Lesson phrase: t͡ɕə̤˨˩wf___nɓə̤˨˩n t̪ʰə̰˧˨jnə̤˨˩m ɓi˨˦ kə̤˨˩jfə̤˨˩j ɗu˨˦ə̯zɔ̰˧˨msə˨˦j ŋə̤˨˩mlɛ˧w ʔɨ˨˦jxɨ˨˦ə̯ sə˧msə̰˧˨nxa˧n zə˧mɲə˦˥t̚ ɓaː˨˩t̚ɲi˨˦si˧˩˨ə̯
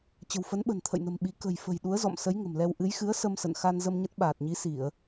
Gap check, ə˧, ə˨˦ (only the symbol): ə˨˦